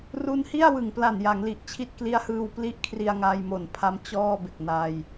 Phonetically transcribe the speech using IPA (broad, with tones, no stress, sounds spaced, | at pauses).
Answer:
r u˧ n h i˥˩ a̯ w ɯ˨˩ ŋ p l a˨˩ n j a˩˦ ŋ l i˨˩ ʔ t͡ɕʰ i˦˥ t̚ k l i˦˥ a̯ h ɯː˧ w p l i˥˩ ʔ kʰ r i˧ a̯ ŋ aː˧ j m o˨˩ n pʰ a˦˥ m t͡ɕ ɔː˥˩ b e˨˩ k̚ n aː˧ j